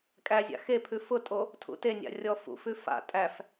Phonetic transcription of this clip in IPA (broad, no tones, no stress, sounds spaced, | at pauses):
kʼ æ zʲ a̰ x e pʰ ʉ f ʊ tʼ o | tʰ ṵ t e nʲ a̰ rʲ ɔ f ṵ f ʉ f a̰ tʼ æ f